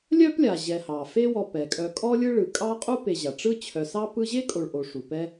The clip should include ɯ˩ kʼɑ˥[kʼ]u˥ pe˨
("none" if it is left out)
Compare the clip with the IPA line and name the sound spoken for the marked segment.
qʼ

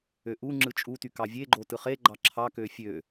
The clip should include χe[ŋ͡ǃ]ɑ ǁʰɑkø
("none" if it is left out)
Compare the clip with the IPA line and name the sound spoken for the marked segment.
ɡ͡ǃ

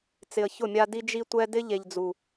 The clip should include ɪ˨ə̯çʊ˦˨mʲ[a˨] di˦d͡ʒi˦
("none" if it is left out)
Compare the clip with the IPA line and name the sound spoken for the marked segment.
a˦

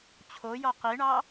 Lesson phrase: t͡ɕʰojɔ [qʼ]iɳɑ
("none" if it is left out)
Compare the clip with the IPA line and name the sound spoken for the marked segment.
q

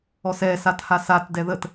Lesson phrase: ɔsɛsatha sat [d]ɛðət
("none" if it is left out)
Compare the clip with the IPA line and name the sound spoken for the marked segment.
d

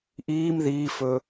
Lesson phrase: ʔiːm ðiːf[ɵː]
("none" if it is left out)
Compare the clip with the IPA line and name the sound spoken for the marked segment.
ɵː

